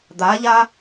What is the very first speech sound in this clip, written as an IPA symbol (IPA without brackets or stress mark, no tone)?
d̪